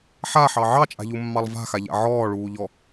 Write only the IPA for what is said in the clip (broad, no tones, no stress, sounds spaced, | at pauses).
ħ a ħ ɑ ʕ ɑ t͡ʃʼ a̤ ʎ u mː ɑ lˠ v a̤ x a ʎ a̰ ʕ ɔː ɭ uː ʎ ɔ